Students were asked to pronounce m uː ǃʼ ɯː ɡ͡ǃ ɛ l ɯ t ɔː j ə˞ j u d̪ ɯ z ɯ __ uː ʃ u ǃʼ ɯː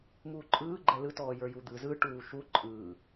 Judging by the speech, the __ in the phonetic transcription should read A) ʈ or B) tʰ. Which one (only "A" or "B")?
A